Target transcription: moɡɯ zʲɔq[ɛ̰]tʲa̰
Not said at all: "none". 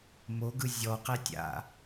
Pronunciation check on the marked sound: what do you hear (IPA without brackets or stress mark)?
ɛ